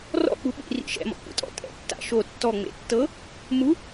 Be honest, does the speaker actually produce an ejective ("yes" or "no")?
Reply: yes